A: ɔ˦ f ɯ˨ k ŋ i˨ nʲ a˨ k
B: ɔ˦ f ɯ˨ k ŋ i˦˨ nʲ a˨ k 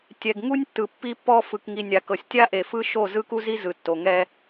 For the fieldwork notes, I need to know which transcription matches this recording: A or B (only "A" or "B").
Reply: A